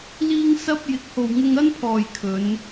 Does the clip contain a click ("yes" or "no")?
no